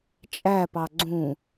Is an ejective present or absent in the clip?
present